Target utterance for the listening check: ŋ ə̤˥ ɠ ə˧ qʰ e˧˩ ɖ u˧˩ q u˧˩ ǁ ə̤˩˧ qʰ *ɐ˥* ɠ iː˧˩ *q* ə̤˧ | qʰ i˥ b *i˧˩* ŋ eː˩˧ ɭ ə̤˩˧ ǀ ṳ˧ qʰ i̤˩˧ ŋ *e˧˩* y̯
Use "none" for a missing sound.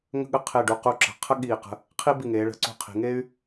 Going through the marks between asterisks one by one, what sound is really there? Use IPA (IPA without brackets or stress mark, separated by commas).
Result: ə˥, q, i˧˩, e˥